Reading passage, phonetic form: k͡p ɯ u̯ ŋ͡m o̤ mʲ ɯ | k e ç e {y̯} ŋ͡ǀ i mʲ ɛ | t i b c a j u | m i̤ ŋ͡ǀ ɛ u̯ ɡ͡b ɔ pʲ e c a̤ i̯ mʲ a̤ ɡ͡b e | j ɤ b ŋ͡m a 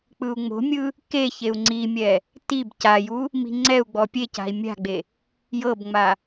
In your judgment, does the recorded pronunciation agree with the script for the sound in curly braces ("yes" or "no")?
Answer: no